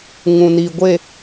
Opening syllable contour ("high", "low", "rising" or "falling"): low